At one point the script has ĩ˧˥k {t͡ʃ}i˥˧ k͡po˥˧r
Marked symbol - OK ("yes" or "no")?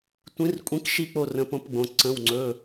no